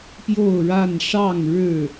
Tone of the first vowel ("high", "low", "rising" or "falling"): falling